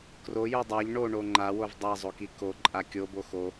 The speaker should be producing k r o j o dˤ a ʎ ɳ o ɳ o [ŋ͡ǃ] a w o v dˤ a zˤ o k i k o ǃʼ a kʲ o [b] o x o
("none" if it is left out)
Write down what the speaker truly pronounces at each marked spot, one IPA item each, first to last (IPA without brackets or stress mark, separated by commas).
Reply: ŋ͡ǃ, b